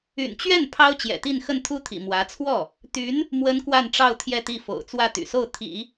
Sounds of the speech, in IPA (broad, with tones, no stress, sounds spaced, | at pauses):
y̰˨˩ n t͡ɕ ɥ ɛ˥˩ n pʰ ɑ˥ ʊ̯ t͡ɕ j ɛ̰˨˩ t̪ i˥˧ n x ə˥˩ n t̪ʰ u˥ t̪ʰ ḭ˨˩ m w ä˧˥ t͡sʰ w ɔ˥˩ | t̪ y˧˥ n | m w ə˥ n k w a˥˧ n ʈ͡ʂ ɑ˥˧ ʊ̯ t̪ʰ j ɛ˥˧ t̪ i˥˩ f o̰˨˩ ʊ̯ t͡s w ä˥˩ t̪ y̰˨˩ s o˥˩ ʊ̯ t̪ʰ ḭ˨˩˦